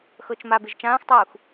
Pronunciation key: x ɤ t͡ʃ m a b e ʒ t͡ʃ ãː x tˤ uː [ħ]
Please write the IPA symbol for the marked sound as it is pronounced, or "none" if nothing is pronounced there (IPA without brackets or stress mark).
x